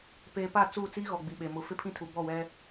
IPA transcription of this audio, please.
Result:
p eː˨ p a˦˨ t͡s uː˦˨ t͡s iː˦ ɣ ɔ˨ ɡ͡b i˨ ɓ e˨ m ʊ˨˦ f ɪ˦ pʰ ĩ˦ tʰ u˨ b ɔ˦˨ w ɛ˦

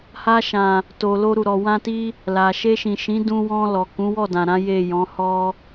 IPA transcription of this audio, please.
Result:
h a˧ ʃ ã˨ | t o˨ l o˧ ɾ u˨ ɾ ɔ˨ w ã˧ t i˧ | l a˨ ʃ e˧ ʃ ĩ˨ ʃ ĩ˨˦ d ũ˧ w ɔ̃˧ l ɔ˨ k ũ˨˦ w ɔ˦˨ d ã˨ ɾ ã˨˦ j e˦˨ j ɔ̃˨˦ h ɔ˧

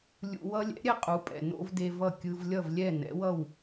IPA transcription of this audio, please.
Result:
lʲ ṵ˧ w ʌ˥ lʲ ɛ̰˩˥ ɾʲ ɛ˥ qʼ u˩˥ pʼ ɛ̰˩ n o̰˥ v d e˧ v ʌ˥˩ kʲ ɯ˧ v lʲ ʌ˥˩ v lʲ ɛ˥˩ n ɛ̰˩˥ w ʌ˥˩ w

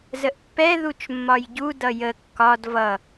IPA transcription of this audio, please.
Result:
z ə ʔ pː ɛ ð u t͡ʃ mː ɒ j ɟ u d ʌ j ə kː ɒ d v ʌ

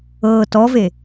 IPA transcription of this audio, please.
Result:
ɤː t ɔ v e

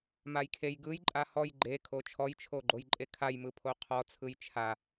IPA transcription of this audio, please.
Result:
m a j kʰ e j ɡ ɯ j ǃʼ a h ɔ j ɡ͡ǃ e kʰ o t͡ʃʰ ɔ j t͡ʃʰ o ɡ͡ǃ o j ǃʼ e kʰ a j m ɯ pʰ o qʰ ɔ t͡sʰ ɯ j t͡ʃʰ a

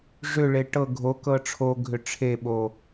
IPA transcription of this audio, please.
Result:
ʐ ʏ ɭ e ʈ ɤ ɡʱ o k ɤ ʈ͡ʂʰ o ɡʱ ʏ ʈ͡ʂʰ e ɓ o

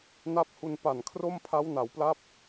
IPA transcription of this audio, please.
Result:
n a˦˥ p̚ h u˧ n p a˨˩ n kʰ r o˥˩ m pʰ a˦˥ w n a˩˦ w p l a˦˥ p̚

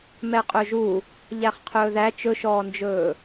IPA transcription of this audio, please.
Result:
m ɛ qʼ ɵ ʒ u | ʎ æ χ qʰ ɵː ð æ t͡ʃ ɵ ʃ ɔː n d͡ʒ ɵː

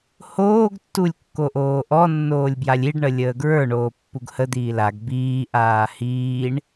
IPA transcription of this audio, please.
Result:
h oː ɡ tː u lʲ kː o ʔ oː ʔ ɔ nː oː lʲ b j a lʲ i ɖ ɳ ə lʲ əː ɡ ɹ ə˞ ɳ oː pː u ɡ h ə d̪ iː l a ɡ b iː ʔ aː h iː ɳ

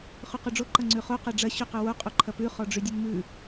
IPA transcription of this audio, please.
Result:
χ ʉ q u ɖ͡ʐ o ǃ ɐ ŋ͡ǀ ʉ χ o q ɐ ɖ͡ʐ ɐ ɕ ʉ q ʊ w o qʼ o ǃʰ ɐ p ʉ χ ɔ ɖ͡ʐ y dʲ u n m ʉ

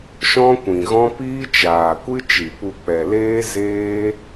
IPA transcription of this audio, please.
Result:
ʃ ɔ̃˦ kʷ ĩ˨ ɣ ɔ̃˦ p iː˦ t͡ʃ aː˨ kʷ ɨ˦ t͡ʃ i˨ p u˧ k͡p ɛ˨ l eː˦ z eː˦

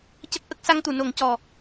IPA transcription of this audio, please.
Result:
c ə˦˥ k̚ ʔ ə˦˥ k̚ s a˧ ŋ t̪ u˨˩˨ n o˨˩˦ ŋ c ɔ˨˩

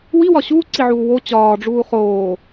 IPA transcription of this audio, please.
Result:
w i w ɒ ɕ uː ǀ i ʕ uː w o t͡ɕ ɒː ɖ͡ʐ uː χ oː

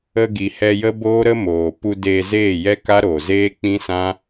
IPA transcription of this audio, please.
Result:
ə˧ ɡ i˨ h ɛ˧ j ə˦ b oː˦ ɾ ə˦ m oː˨ p u˧ d eː˧ z eː˦˨ j ɛ˦ k a˦ ɾ oː˨ z eː˦ k͡p ĩ˦ s ã˦

